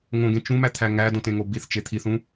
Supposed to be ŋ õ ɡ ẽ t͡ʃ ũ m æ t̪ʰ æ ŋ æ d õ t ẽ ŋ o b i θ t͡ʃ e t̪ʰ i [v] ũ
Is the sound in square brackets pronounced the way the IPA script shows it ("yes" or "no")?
no